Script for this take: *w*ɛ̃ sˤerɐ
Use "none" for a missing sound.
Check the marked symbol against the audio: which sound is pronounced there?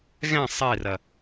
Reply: ɣ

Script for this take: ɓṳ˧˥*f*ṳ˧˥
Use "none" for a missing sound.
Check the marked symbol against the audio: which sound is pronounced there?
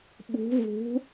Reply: v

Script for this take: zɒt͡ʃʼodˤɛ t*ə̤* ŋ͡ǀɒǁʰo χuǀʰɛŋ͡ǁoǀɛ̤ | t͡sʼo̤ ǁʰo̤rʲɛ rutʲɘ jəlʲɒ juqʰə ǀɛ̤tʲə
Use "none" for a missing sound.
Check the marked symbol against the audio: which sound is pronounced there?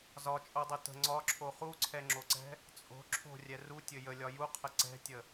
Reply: ə̤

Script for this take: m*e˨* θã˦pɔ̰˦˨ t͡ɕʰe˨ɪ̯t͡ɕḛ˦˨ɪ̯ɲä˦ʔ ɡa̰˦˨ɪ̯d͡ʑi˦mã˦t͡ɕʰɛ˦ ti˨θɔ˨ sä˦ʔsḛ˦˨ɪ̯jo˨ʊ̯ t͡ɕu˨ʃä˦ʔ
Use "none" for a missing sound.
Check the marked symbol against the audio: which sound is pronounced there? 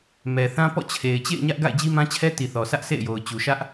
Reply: ɛ˨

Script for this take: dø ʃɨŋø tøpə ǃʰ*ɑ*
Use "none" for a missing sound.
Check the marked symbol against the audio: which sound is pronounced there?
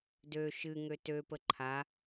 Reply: a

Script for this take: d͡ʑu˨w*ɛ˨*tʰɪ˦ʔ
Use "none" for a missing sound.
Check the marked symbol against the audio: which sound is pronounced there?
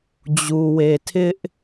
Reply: e˨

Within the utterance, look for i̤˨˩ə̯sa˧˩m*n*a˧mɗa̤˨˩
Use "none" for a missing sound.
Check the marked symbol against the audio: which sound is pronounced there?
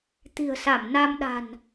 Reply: n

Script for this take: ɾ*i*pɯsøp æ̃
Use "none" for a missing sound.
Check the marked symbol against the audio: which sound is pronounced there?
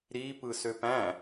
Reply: i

